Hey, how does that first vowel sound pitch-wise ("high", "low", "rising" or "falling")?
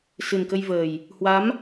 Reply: low